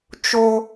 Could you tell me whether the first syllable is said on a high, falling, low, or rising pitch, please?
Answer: high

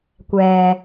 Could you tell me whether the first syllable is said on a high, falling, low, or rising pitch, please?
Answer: low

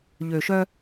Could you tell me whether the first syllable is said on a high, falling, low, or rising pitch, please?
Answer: low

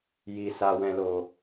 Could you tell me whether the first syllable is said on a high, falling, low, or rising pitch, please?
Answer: low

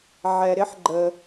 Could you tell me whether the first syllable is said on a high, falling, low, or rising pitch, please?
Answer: low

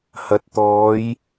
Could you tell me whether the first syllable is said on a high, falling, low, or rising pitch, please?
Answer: rising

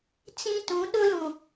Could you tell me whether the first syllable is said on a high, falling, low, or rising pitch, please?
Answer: high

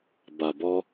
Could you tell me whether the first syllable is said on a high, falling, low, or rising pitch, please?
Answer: low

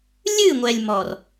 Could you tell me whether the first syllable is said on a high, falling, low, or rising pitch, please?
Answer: falling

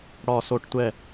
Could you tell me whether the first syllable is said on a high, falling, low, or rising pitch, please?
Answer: falling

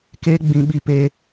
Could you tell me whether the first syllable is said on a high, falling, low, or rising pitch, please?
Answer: high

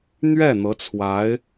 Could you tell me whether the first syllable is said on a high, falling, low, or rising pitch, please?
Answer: falling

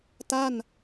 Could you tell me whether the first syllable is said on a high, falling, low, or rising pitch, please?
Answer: falling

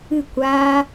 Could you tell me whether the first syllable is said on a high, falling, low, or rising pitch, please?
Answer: falling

